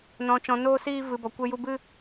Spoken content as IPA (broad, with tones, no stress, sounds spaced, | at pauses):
n ɔ̃˧ t͡ʃ ɔ̃˧ n oː˦ s iː˦ v ɨ˧ b ɔ˧ kʷ e˦ j u˦ b ɨ˦